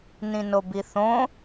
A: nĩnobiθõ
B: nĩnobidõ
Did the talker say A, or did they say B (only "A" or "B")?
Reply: A